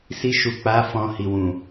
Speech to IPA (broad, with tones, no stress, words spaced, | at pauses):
si˧ʃu˨k͡pa˨˦ fɔ̃˧hi˨wũ˨